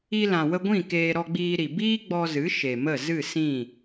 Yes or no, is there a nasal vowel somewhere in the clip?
yes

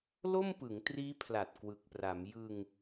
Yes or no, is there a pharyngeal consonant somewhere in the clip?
no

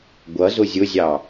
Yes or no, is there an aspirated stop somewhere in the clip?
no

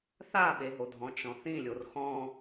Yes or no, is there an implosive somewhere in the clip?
yes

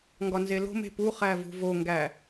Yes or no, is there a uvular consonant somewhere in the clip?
yes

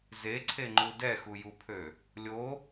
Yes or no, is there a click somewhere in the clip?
yes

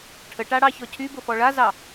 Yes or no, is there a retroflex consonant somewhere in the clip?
yes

